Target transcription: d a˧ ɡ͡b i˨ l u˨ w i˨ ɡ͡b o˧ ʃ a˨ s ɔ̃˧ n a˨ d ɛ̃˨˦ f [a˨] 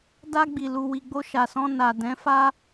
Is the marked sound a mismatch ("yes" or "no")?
yes